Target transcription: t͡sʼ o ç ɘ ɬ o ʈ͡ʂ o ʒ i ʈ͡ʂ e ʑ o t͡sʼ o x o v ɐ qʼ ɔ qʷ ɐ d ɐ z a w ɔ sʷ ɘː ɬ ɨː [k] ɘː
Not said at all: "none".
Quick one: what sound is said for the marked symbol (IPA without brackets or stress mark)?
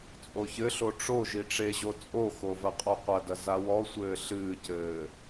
c